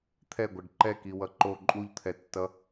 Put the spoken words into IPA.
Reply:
t̪ʰ ɛ ɡʷ ʌ ɖ ǃ ɛ k i w ʌ ǃ o ǃʼ u ʎ t̪ʰ ɛ tː ʌ

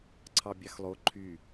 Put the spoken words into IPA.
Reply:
ǀʰ ɑ bʲ ɑ x lˠ o ǃʰ y

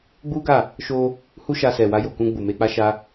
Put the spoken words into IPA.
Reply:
ɡ͡b u˦ ɡ a˦˨ | ʃ o˧ | h u˦ ʃ a˧ s ɛ˨ w a˧ j o˨ k ũ˧ ɡ͡b u˨ m e˧ k͡p a˧ ʃ a˧

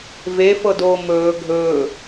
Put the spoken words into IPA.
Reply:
v e f ɤ d oː m ɵː ɡʱ ɵː

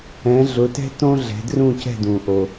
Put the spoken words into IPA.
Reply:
ɛ̃˨˦ ɮ ʊ˨˦ t ɛ̤˥ t õ˥ ɮ ɛ̤˨˦ d r ũ˥˧ c ɛ̤˥˧ d ũ˨ ʔ o˨

